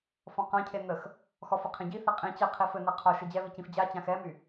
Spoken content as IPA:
fɔ̃qãcʰe nəx | xɔfə qʰẽɟiθɪ qʼĩ t͡ɕɪ qʰifɘnɛ qʰɔ ʃɘd͡ʑɛβi cĩfd͡ʑat͡ɕãx ɛmy

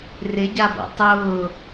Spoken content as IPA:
rɪɟabɔ̰ tˤʊː

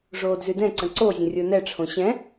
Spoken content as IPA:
ʐoːdzydɛ̃ǀə̃ ǀozʲə̃ rʲonɛʈ͡ʂʰõ ɕɛ̃

